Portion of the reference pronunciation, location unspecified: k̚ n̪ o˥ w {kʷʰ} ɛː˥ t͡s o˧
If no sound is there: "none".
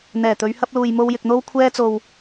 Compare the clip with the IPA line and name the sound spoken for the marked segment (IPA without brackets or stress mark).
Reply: kʷʰ